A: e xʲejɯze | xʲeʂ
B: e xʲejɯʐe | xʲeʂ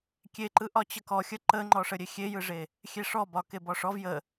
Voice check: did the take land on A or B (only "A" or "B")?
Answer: B